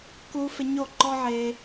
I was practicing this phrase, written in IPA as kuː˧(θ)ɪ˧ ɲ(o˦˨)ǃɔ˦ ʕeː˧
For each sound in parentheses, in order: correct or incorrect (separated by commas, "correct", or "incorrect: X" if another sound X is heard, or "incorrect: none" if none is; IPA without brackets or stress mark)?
incorrect: f, correct